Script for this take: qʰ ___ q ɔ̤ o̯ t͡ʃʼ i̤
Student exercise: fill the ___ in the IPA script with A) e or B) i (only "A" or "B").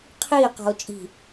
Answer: B